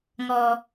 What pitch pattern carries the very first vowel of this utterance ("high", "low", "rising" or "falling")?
low